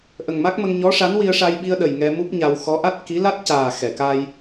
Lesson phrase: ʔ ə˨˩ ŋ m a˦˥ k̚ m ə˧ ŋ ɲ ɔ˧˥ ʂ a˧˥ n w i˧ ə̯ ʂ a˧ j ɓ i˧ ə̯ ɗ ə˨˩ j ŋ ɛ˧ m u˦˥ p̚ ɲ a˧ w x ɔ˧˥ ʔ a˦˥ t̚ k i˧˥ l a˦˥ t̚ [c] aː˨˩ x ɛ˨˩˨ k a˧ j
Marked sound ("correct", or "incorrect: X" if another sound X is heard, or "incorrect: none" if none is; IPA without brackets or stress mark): correct